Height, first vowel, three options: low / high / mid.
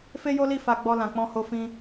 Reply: mid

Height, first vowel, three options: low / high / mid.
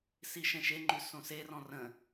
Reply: high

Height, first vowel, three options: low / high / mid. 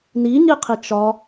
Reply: high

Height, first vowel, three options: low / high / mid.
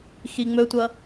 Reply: high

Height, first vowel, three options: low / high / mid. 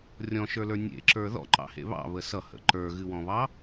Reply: mid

